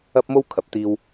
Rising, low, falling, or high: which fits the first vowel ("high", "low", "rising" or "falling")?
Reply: high